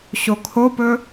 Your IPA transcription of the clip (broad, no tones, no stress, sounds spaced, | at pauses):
ɕ o kʰ o p ɵ